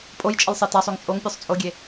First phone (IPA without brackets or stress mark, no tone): pʼ